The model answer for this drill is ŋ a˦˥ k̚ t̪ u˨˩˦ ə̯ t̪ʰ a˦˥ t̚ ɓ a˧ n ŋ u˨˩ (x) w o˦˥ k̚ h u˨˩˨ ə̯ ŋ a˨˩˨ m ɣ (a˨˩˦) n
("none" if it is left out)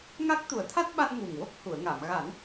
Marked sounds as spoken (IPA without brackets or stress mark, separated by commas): ŋ, a˨˩˦